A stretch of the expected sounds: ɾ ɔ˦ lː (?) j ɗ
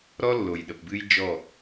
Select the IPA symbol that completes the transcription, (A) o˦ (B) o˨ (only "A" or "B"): B